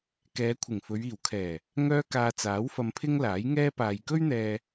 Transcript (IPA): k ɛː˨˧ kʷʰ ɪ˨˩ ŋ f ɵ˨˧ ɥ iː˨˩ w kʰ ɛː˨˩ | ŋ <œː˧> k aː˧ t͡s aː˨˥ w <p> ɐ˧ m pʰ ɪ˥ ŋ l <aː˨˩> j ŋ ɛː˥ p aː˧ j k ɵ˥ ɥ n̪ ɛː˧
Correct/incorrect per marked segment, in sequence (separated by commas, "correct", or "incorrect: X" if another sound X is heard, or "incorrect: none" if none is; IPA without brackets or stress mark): correct, incorrect: f, incorrect: aː˨˥